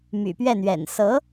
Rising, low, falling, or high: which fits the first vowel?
low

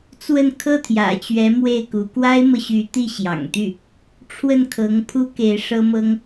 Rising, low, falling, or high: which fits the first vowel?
falling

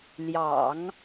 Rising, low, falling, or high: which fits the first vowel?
low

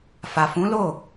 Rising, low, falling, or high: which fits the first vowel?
low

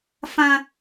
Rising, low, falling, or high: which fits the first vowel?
high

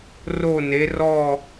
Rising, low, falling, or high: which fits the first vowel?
falling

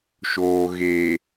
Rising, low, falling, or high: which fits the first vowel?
low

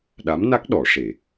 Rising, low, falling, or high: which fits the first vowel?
rising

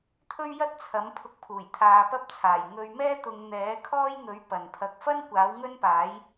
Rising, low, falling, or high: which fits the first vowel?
high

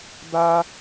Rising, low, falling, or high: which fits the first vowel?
high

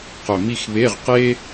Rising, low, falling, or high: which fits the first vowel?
low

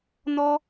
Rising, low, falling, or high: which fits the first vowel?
high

